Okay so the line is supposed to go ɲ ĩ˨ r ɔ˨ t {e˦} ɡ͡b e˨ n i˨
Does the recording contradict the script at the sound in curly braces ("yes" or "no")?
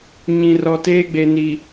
yes